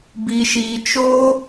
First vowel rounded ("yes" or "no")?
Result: no